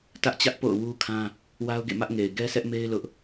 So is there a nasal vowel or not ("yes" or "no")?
yes